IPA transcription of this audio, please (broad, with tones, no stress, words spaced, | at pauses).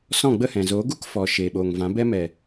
sɔ̃˦˨ɡ͡bə˦hɛ̃˨ zoː˨˦ɡu˦k fɔ˨ ʃeː˨ɓoː˨ŋvã˨˦ bɛ˧mɛ˨